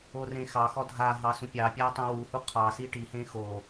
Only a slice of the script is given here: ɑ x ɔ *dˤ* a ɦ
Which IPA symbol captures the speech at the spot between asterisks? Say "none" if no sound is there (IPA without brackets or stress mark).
dʱ